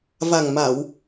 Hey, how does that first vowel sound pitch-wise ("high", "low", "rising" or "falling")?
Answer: low